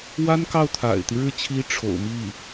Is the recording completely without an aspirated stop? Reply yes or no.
no